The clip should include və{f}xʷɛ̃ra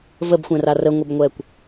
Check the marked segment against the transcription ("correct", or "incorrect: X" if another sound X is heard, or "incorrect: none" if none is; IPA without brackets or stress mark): incorrect: b